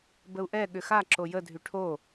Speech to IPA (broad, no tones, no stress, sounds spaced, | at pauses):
b ə u̯ ʔ ɛ ɠ ʏ x a ǁ o j ə dʱ y ʈʰ o